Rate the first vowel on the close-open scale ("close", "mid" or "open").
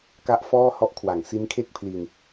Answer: open